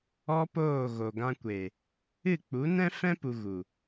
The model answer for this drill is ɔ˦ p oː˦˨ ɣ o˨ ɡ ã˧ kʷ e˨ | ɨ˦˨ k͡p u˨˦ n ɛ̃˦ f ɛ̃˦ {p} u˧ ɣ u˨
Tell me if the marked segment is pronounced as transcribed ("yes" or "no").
yes